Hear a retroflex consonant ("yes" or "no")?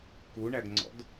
yes